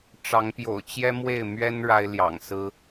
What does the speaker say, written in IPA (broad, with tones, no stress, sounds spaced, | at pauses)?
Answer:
ʈ͡ʂ ɑ˨˦ ŋ p j o̰˨˩ ʊ̯ t͡ɕ j ɛ˦ m w e˥˨ ɪ̯ m ɥ ɛ˦ n ɻ a˦ ɪ̯ l j ɑ̰˨˩ ŋ s ɹ̩˦